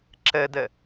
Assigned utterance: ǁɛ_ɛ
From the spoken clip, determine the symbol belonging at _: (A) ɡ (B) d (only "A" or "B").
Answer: B